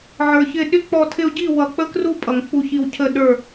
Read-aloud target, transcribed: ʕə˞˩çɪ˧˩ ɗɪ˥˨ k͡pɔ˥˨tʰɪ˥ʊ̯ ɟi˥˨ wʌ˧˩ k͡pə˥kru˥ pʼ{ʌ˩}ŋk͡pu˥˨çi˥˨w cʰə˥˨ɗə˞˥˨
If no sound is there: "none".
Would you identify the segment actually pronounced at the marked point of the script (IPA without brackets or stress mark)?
ʌ˩